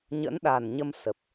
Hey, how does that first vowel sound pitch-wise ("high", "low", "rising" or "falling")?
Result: rising